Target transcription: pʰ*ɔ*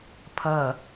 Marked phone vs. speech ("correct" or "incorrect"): incorrect